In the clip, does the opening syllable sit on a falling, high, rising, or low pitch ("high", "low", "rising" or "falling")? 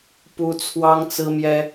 high